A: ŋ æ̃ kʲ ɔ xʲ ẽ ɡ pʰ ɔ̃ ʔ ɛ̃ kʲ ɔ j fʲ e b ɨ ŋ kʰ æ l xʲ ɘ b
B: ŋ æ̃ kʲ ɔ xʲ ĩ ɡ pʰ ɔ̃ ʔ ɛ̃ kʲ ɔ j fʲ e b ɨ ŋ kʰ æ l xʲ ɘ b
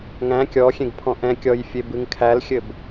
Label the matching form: A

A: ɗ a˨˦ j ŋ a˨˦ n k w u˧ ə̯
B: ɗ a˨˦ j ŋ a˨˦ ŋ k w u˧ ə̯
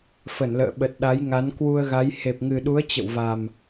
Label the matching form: A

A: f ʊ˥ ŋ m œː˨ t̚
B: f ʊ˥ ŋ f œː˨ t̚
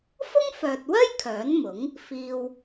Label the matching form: B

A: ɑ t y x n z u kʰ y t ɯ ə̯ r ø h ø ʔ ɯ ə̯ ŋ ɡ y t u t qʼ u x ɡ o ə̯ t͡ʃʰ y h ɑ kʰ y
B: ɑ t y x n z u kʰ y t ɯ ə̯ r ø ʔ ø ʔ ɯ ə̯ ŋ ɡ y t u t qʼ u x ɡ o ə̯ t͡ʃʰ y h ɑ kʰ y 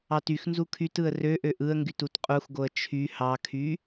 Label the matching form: B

